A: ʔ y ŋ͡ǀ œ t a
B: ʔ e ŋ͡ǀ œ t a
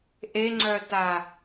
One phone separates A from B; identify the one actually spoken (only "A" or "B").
B